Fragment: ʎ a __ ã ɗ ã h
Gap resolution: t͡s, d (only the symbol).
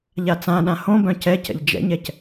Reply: t͡s